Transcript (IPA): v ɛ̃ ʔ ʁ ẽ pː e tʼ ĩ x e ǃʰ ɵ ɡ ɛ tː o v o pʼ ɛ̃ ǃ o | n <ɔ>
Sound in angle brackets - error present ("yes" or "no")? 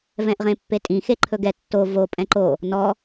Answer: no